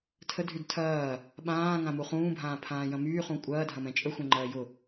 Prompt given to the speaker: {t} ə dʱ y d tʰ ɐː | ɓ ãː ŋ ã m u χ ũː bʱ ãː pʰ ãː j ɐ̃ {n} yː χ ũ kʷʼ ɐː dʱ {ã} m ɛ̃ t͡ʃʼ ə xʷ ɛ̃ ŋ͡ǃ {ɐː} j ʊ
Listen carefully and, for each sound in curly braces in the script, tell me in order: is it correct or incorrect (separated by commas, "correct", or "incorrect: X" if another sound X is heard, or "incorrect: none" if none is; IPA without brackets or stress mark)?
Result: incorrect: tʰ, incorrect: m, incorrect: ɐ̃, correct